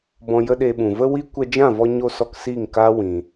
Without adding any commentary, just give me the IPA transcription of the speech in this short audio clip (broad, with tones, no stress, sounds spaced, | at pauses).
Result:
b ɔ̃˧ j ə˦ ɗ e˧ ɓ ũ˨ v ə˦ w i˦ kʷ ɛ˧ d͡ʒ ã˦˨ v ɔ˧ ɲ o˧ s ɔ˧ k s iː˦˨ ŋ k aː˦ w ĩ˧